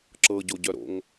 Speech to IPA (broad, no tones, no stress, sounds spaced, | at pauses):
ǁ ɤ ɟ o ɟ œ ɾ o̰ ŋ